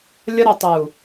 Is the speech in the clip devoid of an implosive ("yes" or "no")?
yes